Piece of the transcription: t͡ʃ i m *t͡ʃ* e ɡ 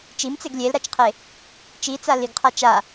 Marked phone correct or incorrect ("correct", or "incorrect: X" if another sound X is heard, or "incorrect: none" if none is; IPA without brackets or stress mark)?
incorrect: t͡s